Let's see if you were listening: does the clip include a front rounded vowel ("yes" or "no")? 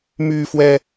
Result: yes